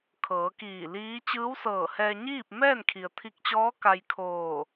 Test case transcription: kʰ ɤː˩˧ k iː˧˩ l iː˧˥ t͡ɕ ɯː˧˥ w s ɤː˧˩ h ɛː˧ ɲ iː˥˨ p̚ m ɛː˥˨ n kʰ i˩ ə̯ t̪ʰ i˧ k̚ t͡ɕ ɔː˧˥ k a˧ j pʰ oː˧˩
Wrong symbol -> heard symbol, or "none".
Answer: pʰ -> kʰ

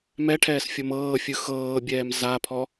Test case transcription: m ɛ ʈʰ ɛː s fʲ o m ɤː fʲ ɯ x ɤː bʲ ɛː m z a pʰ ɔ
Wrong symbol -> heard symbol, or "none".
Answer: none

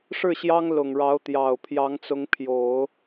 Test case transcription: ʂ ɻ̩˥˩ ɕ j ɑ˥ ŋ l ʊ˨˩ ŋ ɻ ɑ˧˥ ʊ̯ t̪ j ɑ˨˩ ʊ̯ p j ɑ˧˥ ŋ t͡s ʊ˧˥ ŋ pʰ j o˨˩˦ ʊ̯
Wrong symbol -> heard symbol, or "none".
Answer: p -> pʰ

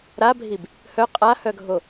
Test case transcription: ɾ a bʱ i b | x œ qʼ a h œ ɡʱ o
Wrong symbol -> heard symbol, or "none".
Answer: x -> h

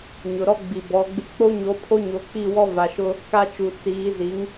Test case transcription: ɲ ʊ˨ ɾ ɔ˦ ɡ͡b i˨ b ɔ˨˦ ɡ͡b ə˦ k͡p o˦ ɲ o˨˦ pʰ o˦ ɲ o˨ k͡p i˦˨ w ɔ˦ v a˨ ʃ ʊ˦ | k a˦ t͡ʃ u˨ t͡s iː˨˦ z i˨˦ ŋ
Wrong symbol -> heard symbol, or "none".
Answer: ə˦ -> ɪ˦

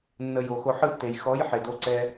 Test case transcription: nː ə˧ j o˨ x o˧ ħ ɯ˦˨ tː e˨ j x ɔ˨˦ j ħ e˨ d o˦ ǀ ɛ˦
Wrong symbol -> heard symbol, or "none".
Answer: none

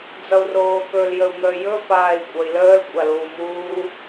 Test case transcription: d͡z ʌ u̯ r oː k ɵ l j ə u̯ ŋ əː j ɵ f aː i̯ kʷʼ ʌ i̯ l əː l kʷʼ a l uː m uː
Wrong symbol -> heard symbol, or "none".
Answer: none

